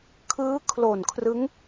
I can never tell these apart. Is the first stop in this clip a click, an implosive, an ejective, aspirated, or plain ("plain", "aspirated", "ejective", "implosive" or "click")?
aspirated